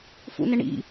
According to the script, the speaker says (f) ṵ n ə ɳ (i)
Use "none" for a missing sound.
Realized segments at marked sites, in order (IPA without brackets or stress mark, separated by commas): f, ḭ